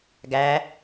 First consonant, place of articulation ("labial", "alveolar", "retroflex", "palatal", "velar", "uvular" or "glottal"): velar